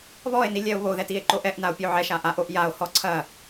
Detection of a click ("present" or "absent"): present